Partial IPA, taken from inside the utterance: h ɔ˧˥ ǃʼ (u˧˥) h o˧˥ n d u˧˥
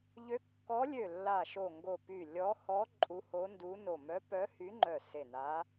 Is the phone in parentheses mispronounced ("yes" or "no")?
no